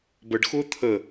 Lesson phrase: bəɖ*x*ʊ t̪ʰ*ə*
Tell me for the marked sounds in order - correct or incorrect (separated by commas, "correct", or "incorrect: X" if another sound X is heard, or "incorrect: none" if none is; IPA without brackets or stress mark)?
correct, correct